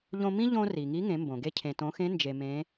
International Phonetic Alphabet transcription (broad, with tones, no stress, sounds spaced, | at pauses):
ʎ õ˧ m ĩ˥ ʎ õ˧ r i˩ ŋ i˧˥ ŋ ẽ˩˧ m b õ˩ ɡ e˧ cʰ ẽ˩ t õ˩˧ x ẽ˧˥ n d͡ʒ e˧ m ẽ˧˥